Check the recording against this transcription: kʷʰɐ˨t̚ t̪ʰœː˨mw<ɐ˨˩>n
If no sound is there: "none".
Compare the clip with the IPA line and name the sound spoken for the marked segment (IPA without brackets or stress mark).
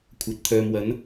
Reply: ɐ˨˥